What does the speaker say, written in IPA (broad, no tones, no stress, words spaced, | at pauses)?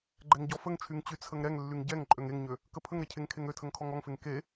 ɡ͡ǃɛŋɟɔfəŋt͡ʃʰyŋ t͡ɕyt͡sʰəŋɾɛŋlːyŋ ɟɛŋ ǃʼøŋeŋɲø | kəpʰəŋɾɛ cʰeŋkʰeŋøtʰəŋ kʰɔŋɔŋfeŋ ke